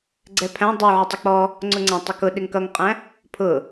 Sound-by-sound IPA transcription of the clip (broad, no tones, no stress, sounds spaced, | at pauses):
ɡ͡ǀ ɛ pʰ æ̃ dˤ u ʕ ɪ tˤ ɪ k͡p ɔ | ŋ͡ǀ ʊ ŋ͡ǀ æ̃ tˤ ə k ʊ ɗ ɪ ŋ k ʌ ŋ qʼ æ̃ | pʰ ʊ